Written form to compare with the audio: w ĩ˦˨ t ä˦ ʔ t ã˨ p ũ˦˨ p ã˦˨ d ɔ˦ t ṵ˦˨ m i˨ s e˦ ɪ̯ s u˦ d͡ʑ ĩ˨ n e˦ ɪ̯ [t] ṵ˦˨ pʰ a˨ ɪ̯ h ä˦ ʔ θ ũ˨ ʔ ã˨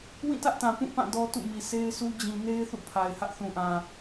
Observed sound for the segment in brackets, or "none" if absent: θ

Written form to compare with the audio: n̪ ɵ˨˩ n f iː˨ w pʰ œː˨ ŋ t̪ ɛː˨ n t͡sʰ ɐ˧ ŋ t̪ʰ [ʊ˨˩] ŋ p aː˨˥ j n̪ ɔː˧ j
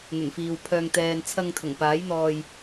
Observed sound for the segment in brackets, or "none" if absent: ʊ˨˩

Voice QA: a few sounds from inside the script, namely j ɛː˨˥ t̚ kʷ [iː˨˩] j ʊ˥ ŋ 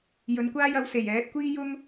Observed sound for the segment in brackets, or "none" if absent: iː˥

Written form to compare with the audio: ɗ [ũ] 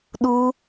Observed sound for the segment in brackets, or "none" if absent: u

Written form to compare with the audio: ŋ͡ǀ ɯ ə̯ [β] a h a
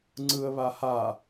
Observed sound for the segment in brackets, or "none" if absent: β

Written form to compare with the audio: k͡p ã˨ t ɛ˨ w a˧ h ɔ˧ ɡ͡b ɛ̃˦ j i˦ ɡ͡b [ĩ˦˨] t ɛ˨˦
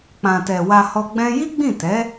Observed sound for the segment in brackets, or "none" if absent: ĩ˦˨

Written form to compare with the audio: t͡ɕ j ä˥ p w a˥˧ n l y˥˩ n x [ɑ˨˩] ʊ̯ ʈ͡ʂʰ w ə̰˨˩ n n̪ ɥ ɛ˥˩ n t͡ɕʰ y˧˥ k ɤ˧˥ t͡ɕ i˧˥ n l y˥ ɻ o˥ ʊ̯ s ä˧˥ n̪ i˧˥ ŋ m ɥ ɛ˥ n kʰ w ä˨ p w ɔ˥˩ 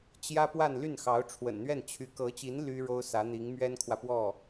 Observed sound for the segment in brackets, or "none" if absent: ɑ˧˥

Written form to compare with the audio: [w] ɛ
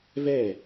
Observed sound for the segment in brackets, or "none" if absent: v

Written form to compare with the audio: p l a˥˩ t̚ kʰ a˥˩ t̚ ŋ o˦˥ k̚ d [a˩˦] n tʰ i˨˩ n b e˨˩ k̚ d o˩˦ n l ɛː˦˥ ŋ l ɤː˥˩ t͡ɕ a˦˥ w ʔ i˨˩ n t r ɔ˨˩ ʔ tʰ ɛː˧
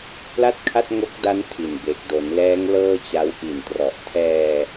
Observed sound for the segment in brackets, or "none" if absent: a˦˥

